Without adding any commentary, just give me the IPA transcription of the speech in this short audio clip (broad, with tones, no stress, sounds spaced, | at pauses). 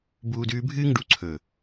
b uː˧ d ʉː˧ bʱ ɨː˦ ŋ ɖ u˨˦ ǀʰ ɵː˨